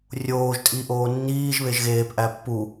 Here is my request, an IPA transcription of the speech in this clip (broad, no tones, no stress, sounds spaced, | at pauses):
rʲ oː ʒ tʼ i ʔ oː nː iː ʒ β e ʒ ɣ eː p ʔ æ pː u